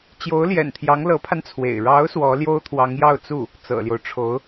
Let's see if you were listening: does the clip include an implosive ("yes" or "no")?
no